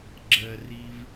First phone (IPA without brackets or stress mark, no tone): ɡ͡ǁ